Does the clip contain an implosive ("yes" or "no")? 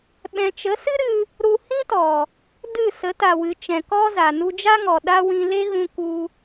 yes